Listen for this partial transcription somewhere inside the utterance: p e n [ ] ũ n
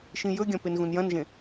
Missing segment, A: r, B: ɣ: B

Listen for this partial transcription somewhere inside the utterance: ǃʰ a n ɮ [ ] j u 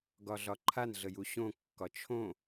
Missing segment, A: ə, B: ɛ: A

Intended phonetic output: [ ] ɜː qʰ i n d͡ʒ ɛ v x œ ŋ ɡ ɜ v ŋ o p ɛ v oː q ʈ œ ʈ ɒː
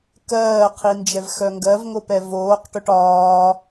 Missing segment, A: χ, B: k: B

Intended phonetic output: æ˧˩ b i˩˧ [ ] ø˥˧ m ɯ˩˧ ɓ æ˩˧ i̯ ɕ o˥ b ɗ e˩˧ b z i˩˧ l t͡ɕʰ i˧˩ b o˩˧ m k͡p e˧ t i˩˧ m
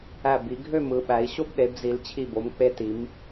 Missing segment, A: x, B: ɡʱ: B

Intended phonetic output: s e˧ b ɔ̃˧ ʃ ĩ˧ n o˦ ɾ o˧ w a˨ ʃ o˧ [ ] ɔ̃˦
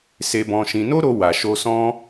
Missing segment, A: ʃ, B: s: B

